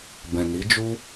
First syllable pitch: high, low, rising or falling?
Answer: low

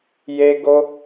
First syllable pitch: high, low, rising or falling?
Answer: high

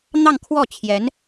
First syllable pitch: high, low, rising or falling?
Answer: falling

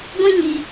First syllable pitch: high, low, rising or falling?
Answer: high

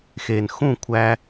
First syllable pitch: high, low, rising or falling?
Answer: low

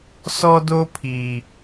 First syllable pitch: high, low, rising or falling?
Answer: high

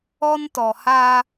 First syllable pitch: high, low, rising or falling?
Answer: high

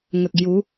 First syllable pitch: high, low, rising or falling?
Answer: low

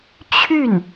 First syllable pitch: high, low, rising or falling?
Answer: falling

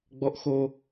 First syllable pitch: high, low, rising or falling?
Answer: high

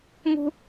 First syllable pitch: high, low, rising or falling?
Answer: high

